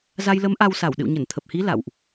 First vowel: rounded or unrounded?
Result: unrounded